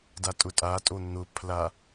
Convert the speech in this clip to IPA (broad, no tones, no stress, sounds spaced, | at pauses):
d a tʼ ʊ tʼ a tʼ o n̪ ʊ pʰ l a